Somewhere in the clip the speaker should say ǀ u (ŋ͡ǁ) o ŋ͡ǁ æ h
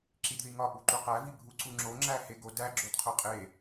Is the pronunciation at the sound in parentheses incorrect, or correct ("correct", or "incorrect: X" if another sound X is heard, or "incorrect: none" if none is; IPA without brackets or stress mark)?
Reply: correct